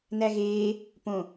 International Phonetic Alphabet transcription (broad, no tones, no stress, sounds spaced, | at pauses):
n æ ɣ eː | p õ